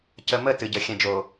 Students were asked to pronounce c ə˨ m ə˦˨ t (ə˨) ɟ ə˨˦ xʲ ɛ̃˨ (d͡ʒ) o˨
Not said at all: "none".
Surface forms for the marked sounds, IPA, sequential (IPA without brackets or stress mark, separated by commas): ɨ˨, d͡ʒ